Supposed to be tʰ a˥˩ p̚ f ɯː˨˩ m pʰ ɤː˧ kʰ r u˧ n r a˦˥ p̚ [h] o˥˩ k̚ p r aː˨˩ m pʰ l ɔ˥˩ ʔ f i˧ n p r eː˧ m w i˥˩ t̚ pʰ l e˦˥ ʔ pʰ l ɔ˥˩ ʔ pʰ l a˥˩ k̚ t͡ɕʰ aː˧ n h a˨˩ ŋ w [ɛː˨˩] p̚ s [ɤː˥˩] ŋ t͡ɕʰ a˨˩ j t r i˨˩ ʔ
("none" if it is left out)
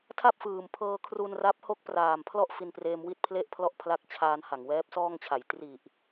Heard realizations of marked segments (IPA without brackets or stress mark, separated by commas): h, ɛː˦˥, ɔː˥˩